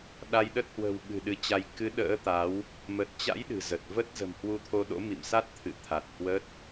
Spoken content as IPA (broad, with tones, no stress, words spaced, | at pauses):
ɗa˧jɗə˦˥t̚ hwə̤˨˩wɓɨ̤˨˩ ɗɨ˨˦t͡ɕa˧j kɨ˨˦ ɗə̰ː˧˥t̪a˨˦w | mə˨˩t̚t͡ɕa̰˧˥j ɗɨ̤˨˩zə˨˩t̚və˦˥t̚ zə̤˨˩mhwu˧t̪ʰo˧ ɗo̰˧˥mḭ˧˨msa˦˥t̚ t̪ʰɨ̰˧˨t̪ʰa˨˩t̚ hwə˦˥t̚